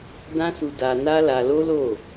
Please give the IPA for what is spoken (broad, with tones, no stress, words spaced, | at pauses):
dã˦su˧da˧ na˦la˧lo˦lo˦˨